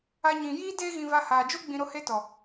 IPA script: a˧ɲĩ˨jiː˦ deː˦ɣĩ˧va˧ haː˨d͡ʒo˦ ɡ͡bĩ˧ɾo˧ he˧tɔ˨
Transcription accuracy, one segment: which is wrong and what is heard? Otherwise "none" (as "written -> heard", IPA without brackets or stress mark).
none